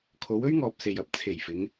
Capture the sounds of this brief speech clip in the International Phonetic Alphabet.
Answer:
kʰ o˨˧ w ɵ˥ ɥ ŋ ɔː˨ p̚ s e˨ j ɐ˨˥ p̚ t͡sʰ e˨˩ j f ɪ˨˧ ŋ

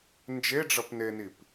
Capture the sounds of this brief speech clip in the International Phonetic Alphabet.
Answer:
n d͡ʒ e ɖ͡ʐ ʌ p n e n i p

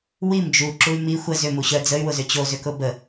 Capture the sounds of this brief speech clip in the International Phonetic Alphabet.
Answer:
w i m d͡ʒ u ǁ u y̯ m i xʷ ə z ʏ m u ɕ œ d͡z ə y̯ w ʊ z ʏ t͡ɕ o z ʏ k ʊ b ə

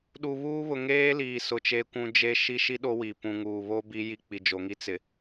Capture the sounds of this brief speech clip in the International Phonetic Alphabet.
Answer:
ɗ u˨ β uː˦ β ʊ˨ ŋ eː˦ l iː˨ s ʊ˨ t͡ʃ e˦ kʷ ũ˦ d͡ʒ e˦ ʃ i˦ ʃ i˦ ɗ o˦ w i˨ p ũ˨ ŋ uː˨ β o˦ b i˦ j i˦ k͡p i˨ d͡ʒ o˨ ŋ i˦ t͡s ɪ˨

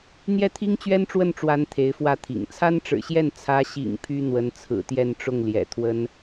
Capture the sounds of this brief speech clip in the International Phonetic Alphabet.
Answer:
n̪ j ɛ˥˩ t̪ʰ i˥ ŋ t͡ɕ ɥ ɛ˥ n ʈ͡ʂ w ə˥˩ n ʈ͡ʂ w a˥ n t̪ʰ e˧˥ ɪ̯ f w ä˥˩ t̪ʰ ḭ˨˩ ŋ t͡sʰ a˥ n ʈ͡ʂ ɻ̩˨˩ ɕ j ɛ˥˩ n t͡sʰ ä˧˥ ɕ ḭ˨˩ ŋ pʰ y˥ n̪ w ə˧˥ n t͡sʰ ɹ̩˨˩ t̪ j ɛ˥˧ n ʈ͡ʂ ʊ˥˩ ŋ l j ɛ̰˨˩ t̪ʰ w ə˥ n

